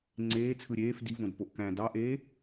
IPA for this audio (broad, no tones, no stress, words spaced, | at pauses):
ŋ͡ǀeː t͡sʰɯɾʲeːf divõd poʔkæ̃ dɑʔeː